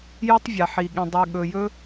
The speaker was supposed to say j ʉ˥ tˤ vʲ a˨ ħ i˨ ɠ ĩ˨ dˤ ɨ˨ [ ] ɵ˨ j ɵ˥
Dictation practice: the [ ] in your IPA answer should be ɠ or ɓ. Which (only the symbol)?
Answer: ɠ